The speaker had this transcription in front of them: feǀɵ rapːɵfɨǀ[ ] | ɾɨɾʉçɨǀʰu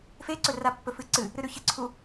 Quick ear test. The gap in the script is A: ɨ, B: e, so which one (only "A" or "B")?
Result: A